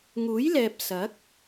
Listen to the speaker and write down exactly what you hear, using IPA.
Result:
ŋ uː˨˥ j l ɛː˨ p̚ s ɐ˨˥ k̚

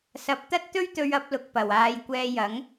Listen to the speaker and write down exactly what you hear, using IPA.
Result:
s ɐ˧ p̚ t̪ ɐ˥ t̚ t̪ ɵ˥ ɥ t̪ ɵ˧ ɥ ɐ˨˥ p̚ l ʊ˧ k̚ p ɐ˨ w aː˧ j kʷ ɛː˧ j ɐ˨˥ ŋ

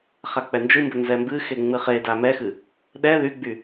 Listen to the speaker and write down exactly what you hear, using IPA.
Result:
χ a k͡p ɛ n d͡ʒ ɨ m b ə n z ɛ m b ɨ x e ŋ͡m ɨ χ e d a m ɛ x ɨ | ɗ ɛ ð y ɡ͡b y

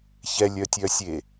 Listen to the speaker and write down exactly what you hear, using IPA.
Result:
ç ɛ lʲ œ tʲ œ sʲ e

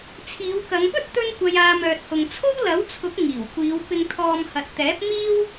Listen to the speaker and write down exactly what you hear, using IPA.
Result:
t͡sʰ iː˨˧ w k ɐ˨˧ ŋ p ɵ˥ t̚ t̪ ɵ˥ n kʷ ɐ˧ j aː˧ m œː˨ t̚ h ʊ˨ ŋ t͡sʰ o˥ w l ɐ˨˥ w t͡sʰ ʊ˨˥ k̚ ŋ iː˨˩ w kʷ iː˨˧ w p ɪ˨ ŋ t̪ʰ ɔː˨ m h ɐ˨ t̚ t̪ ɛː˨˥ p̚ m iː˥ w

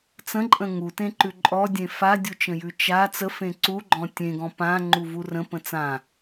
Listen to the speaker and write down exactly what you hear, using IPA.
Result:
t͡s ə̃ ǃʼ ə̃ ŋ u t ẽ ǃ ʉ ǃʼ ɔ dʲ ẽ f a dʲ u t͡ʃ ə̃ j ʉ t͡ʃ a t͡s ə f ẽ ǀ u ɡ͡ǃ ɔ̃ tʲ ẽ ɡ ɔ̃ p ã ŋ͡ǃ u v u r ə̃ p ə̃ t͡s ã

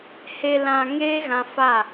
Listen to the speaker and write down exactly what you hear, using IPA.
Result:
h e˨ l ã˨ ŋ eː˦ ɣ ã˧ f a˦˨

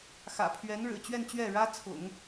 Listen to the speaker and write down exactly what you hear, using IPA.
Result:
x ä̰˨˩ pʰ ɥ ɛ˧˥ n ɻ ɻ̩˨˩ t͡ɕ ɥ ɛ˥˧ n t͡ɕ ɥ ɛ˥˩ ɻ ä˥ t͡sʰ ʊ̰˨˩˦ ŋ

